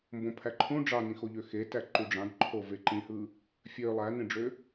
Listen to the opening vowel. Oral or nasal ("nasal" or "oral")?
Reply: nasal